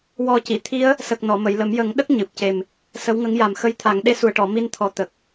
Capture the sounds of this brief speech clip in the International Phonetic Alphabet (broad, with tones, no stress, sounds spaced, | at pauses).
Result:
w ɔ˧ c i˨˩˨ t̪ʰ i˧˥ ə̯ | s ə˨˩ k̚ n ɔ˨˩˨ m ə˨˩˨ j l ə˨˩˦ m j ə˨˩˦ ŋ ɗ ə˦˥ k̚ ɲ ɨ˨˩ p̚ c e˨˩ m | s ə˧˥ w ŋ ə˧˥ ŋ j a˨˩ m x ə˧˥ j t̪ʰ a˨˩˦ ŋ ɗ e˧ s u˨˩ ə̯ ʈ ɔ˨˩˨ m i˧ n t̪ʰ ɔ˨˩ t̪ ə˨˩ k̚